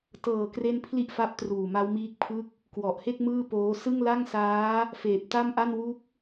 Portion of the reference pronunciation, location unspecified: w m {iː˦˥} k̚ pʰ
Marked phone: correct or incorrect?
correct